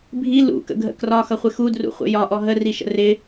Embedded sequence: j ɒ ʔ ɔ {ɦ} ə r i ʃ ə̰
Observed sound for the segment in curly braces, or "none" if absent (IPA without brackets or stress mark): ɦ